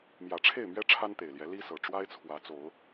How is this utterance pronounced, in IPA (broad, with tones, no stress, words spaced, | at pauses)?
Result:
mjä˨˩ʈ͡ʂʰe˥˨ɪ̯mɥɛ˦ ʈ͡ʂʰa˦nt̪e˨˩ɪ̯ljɛ˨˦ li˦sɤ˨˩ ʈ͡ʂwa˦ɪ̯t͡sʰwä˨˦t͡so˨˦ʊ̯